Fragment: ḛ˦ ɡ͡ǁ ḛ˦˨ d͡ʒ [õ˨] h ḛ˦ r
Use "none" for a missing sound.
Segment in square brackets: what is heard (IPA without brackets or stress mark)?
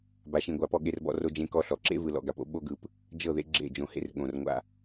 õ˨